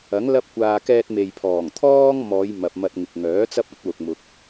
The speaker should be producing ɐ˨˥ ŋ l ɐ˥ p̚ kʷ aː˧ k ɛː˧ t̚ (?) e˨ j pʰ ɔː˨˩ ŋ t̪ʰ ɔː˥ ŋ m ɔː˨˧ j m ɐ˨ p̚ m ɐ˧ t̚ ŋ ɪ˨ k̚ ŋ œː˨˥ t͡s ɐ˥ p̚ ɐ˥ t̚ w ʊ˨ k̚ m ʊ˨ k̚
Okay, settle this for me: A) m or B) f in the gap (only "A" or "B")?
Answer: A